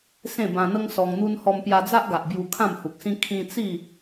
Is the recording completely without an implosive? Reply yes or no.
yes